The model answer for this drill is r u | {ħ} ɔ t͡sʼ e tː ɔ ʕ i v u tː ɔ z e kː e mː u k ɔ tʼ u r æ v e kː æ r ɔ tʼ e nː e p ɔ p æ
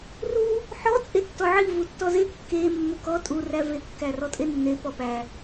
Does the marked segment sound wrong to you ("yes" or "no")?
no